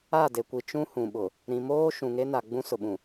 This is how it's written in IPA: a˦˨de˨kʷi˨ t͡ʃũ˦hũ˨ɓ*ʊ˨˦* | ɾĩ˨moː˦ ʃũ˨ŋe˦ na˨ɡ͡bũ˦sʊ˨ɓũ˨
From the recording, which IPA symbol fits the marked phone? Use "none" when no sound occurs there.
ʊ˨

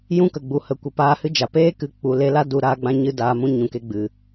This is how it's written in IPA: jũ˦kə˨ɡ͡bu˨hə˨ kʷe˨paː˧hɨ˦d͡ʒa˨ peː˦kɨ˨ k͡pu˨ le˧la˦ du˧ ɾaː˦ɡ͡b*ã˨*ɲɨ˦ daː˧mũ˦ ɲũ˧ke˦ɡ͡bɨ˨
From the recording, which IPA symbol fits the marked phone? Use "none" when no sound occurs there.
ã˦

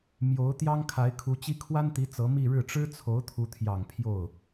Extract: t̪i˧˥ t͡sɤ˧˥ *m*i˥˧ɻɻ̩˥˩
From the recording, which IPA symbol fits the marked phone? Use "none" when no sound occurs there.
m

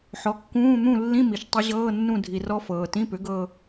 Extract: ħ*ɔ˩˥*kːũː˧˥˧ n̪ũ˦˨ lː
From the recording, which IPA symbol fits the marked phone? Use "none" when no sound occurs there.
ɔ˩˥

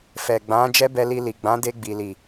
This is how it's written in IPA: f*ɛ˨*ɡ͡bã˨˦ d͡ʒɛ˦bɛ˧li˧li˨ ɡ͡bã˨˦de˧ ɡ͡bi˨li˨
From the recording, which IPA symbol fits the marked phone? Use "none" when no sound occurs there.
ɛ˨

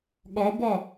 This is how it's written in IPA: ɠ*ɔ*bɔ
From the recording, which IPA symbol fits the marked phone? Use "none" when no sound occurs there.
ɔ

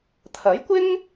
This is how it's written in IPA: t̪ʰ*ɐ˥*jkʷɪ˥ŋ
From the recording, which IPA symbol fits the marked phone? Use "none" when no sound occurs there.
ɐ˨˥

